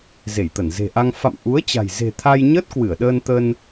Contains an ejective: no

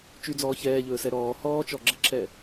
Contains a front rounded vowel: yes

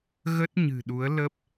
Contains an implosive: yes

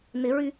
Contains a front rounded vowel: yes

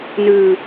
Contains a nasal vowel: no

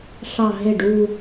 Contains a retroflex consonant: yes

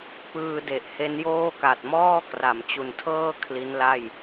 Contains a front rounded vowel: no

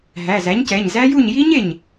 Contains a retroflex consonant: no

